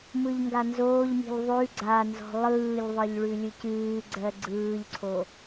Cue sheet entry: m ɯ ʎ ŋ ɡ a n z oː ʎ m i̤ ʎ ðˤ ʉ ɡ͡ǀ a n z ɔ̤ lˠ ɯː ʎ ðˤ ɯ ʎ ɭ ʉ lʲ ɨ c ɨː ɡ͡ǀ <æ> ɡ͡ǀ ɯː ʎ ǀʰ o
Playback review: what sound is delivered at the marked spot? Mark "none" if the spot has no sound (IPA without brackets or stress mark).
ɜ